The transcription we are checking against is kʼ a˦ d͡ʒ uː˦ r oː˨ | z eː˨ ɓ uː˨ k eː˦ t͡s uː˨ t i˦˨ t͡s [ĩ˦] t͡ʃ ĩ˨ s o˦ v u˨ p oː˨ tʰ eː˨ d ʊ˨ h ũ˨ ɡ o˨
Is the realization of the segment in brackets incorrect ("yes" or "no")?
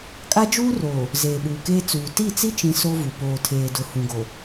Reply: yes